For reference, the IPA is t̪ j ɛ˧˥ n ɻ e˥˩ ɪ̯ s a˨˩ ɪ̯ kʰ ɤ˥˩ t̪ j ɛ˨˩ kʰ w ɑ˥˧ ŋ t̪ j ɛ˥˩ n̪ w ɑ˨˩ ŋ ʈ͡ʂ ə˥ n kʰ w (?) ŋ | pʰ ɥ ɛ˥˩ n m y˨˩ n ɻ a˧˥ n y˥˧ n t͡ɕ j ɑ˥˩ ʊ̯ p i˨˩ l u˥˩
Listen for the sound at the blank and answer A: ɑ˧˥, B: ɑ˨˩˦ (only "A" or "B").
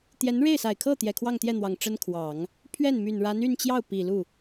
B